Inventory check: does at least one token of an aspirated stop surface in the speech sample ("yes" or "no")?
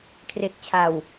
yes